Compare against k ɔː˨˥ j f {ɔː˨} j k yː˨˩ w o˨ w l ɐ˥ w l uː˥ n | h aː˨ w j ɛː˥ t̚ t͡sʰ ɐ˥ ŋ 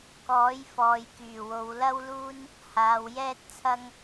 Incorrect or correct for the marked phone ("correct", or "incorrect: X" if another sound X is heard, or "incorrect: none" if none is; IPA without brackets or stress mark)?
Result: correct